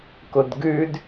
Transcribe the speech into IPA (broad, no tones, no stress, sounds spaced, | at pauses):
k ʊ d ɡ ʉ d